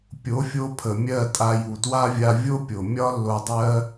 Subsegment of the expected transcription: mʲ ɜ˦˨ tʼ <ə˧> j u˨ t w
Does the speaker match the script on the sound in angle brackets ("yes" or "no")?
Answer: no